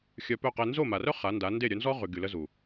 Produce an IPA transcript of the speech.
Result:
xʲ œ˧ p œ˦˨ q e˧ n z o˦˨ m a˨ r œ˦ χ a˨˦ n d a˨˦ n d e˦˨ ɾʲ œ˧ n z ɔ˦ ʁ y˨ ɡ y˨ l ə˧ z u˨

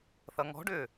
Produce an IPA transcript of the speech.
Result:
θ ʌ ŋ ɔ̤ ɖ ʏː

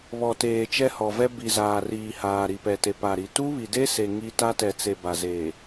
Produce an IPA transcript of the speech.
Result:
β ɔ˨ t eː˨ t͡ʃ ɛ˦ h ɔ˨ v ɛ˦ b i˨ z aː˨ r iː˨ h aː˨ ɾ i˨ p ɛ˨ t e˨ p a˨ ɾ i˨ t u˦ β i˨ d e˦ s e˨ ŋ i˦ t a˦ t ɛ˨ t͡s e˨ b a˨ z eː˨

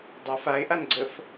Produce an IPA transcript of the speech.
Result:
dˤ a f a ɪ̯ ʔ a n ɡ͡ǀ ə f

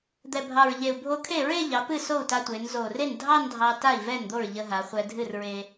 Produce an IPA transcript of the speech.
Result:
d̪ ɛ˨˩ bʱ ɑ˨˩ ɹ ʎ e˨˩ u̯ bʱ o˧ kʰ e˥˩ ɹ e˥˧ ʎ ɑ˩˧ p ɨ˥˩ s o˥˩ u̯ t a˧ tʷ e˩˧ n z o˨˩ r e˥˩ n dʱ ɑ˥˧ n dʱ ɑ˧ t a˥˩ i̯ v ɛ˥˩ n d̪ o˥˩ ɹ ʎ ə˧ ɦ a˩˧ χʷ ɛ˧ dʱ ɨ˥˩ r ɹ e˧

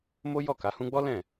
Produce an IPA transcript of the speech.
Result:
m o˦ j ɔ˦˨ k a˨˦ h ũ˦ ɡ͡b ɔ˦ l ɛ̃˦˨

